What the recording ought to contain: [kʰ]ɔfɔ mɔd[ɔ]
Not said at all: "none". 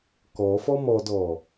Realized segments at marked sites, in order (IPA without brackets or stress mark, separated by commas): k, ɔ